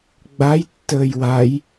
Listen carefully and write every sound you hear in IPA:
ɡ͡b a j tː əː j w a j

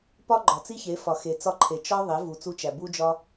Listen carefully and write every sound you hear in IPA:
p ɒ˦ ɡ͡ǃ ɒ˨ t͡s i˦ ç e˨˦ f ɒ˨ x e˨ t͡s ɒ˧ ǃʰ e˨ t͡ʃ ɒ˦ ðˤ e˨˦ v u˨ t͡s u˧ t͡ʃ æ˨ b u˦ d͡ʒ ɒ˦

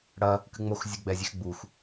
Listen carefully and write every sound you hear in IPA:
ɽ ɐ | k ɨ ŋ͡m o x zʲ ɨ ɡ͡b ɛ zʲ ɛ x ɡ͡b u x

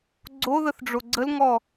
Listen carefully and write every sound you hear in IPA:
ɡ͡ǀ o ð ə θ ɖ͡ʐ o ɡ͡ǀ ə l ŋ ɔ

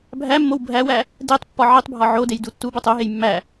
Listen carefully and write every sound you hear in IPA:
bʱ æ mː o w bʱ æ w æ | d e tˤ pː ɒ ʕ i tˤ bʱ ɒ ʕ o d e j d u tː u b o tˤ o ɦ e j mː æ

